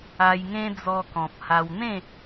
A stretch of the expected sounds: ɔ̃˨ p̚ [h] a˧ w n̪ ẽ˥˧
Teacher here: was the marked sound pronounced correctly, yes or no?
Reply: yes